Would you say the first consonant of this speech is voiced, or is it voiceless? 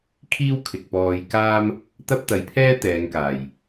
voiceless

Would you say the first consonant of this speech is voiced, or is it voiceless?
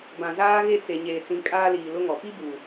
voiced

